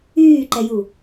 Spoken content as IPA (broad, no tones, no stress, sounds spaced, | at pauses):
yː ǃ ɛ j u